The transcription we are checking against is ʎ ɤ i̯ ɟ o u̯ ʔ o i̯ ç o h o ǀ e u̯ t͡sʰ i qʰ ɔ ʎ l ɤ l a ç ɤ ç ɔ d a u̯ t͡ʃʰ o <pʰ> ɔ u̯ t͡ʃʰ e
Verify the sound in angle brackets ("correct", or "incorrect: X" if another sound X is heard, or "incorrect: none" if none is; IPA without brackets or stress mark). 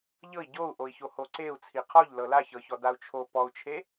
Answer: incorrect: p